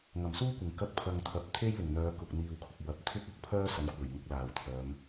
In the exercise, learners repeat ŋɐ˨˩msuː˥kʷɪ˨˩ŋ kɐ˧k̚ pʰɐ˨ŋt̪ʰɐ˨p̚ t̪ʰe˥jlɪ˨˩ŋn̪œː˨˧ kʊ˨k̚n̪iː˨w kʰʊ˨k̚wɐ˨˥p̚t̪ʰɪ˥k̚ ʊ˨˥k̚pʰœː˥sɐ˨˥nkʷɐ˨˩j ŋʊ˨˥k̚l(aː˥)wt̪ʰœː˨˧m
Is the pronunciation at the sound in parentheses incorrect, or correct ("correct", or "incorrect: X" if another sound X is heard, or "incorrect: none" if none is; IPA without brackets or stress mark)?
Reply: incorrect: aː˨˩